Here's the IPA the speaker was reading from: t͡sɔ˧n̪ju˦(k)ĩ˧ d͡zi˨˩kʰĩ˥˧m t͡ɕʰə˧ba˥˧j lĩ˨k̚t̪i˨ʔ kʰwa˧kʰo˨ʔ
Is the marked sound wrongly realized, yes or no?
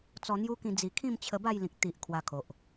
no